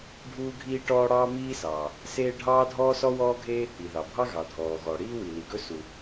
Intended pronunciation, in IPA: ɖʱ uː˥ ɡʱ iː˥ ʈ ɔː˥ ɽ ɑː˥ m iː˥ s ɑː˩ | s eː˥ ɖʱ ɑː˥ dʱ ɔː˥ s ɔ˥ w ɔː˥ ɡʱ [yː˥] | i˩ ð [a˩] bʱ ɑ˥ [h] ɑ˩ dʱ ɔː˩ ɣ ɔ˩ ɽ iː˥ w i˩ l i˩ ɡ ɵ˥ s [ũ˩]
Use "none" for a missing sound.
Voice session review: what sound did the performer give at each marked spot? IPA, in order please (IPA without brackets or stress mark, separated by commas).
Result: eː˥, ɑ˩, ɣ, u˩